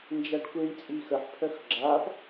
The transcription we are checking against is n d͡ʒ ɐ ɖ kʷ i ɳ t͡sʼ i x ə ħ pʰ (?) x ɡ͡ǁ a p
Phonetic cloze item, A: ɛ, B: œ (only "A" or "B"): B